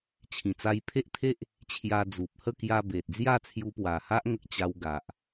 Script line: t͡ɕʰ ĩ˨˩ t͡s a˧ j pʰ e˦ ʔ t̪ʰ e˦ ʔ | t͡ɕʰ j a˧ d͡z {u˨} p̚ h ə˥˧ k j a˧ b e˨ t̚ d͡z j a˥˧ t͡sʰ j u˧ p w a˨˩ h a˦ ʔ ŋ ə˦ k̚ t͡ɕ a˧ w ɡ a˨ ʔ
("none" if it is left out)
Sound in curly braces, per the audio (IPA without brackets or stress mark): u˨